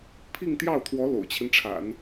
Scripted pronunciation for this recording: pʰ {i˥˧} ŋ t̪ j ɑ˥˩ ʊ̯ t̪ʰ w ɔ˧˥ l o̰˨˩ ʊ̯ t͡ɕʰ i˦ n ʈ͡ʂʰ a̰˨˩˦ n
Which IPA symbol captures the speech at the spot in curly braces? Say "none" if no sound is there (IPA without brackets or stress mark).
i˥˧